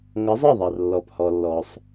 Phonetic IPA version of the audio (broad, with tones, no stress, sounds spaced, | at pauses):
ŋ ʌ˨˥ zˤ ɤ˥˩ ðˤ ɑ˩ r lː ɔ˩ p h ɔ˩ lː ɔ˩ sˤ